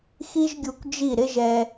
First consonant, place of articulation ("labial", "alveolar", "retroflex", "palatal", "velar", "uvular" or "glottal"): velar